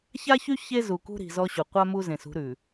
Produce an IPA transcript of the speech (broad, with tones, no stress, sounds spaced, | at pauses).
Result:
ç a˦ ç y˦ ç e˦ z u˨ k ṳ˦ ɾ i̤˨ z ɔ˦ ɕ u˨ qʷ a˦ m u˦ z ẽ˨ s ṳ˨˦ ɾ ʉ˨